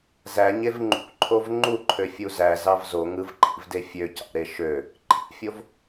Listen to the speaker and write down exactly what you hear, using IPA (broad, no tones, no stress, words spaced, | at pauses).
zæɲev ŋ͡ǃṵǃʰov ŋ͡ǃuǃʰøfʲu zæzɑv zoŋɯvǃʰḭvde fʲøcɑ̰ɾe ʃø | ǃʰḭfʲov